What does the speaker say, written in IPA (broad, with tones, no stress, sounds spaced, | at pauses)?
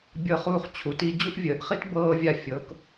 bʲ ɤ˥ χ uː˥ χ t͡ɕʰ u˨˦ t i˥ d͡ʑ u˥ ʔ vʲ əː˨˦ ʔ χ i˥ t b ɤː˥ vʲ a˥˨ fʲ ɤ˨˦ k